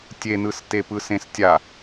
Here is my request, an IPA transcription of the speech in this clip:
tʲ e n ɯ s t e p ɯ s ẽ s tʲ a

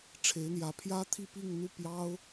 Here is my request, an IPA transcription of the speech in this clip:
ʈ͡ʂʰ e˧˥ ɪ̯ n̪ j ä˧˥ pʰ j ä˥ t̪ʰ i˥˧ p i˥˧ ŋ n̪ u˥˩ p j ɑ˥ ʊ̯

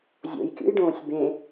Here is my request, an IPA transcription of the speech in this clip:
zʲ o̰ j kʲ ṵ j ɖ õː sʲ b ẽ

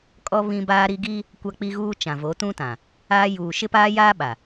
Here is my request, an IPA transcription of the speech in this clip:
kʼ ɔ˦ β ĩ˦ b aː˦ ɾ i˦ ɡ iː˦ | kʷ a˦ k͡p i˦ ɣ uː˦ t͡ʃ ã˨ v o˨˦ t ũ˦ t ã˨ | aː˦ j uː˨ ʃ ɪ˦ p aː˦ j aː˦ ɓ a˨

